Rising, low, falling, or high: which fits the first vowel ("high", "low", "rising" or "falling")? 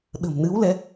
low